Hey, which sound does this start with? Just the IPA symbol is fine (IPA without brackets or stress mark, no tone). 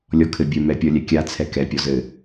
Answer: lʲ